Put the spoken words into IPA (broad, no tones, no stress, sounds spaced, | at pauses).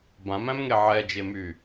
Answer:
b ã m æ̃ m ŋ e ʕ ɛ d͡ʒ e m y